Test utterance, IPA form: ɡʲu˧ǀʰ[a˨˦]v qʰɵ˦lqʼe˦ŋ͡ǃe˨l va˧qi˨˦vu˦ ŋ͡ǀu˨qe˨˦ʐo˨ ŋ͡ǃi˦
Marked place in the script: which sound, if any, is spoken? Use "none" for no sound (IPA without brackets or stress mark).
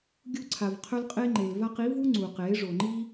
a˨